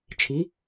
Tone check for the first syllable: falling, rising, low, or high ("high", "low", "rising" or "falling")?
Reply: rising